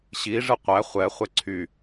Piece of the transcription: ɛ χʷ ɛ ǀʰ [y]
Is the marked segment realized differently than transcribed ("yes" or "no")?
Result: no